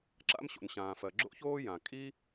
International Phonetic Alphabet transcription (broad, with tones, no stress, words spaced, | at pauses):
ǁa̰˥mɕo̰˩nɕãː˩fɜ˩ ɡ͡ǁo̰˥çoː˥jã˩ kʼi˥